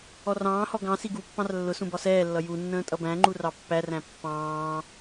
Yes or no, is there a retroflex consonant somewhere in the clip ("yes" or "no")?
no